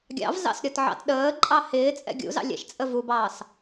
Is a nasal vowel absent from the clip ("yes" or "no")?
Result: yes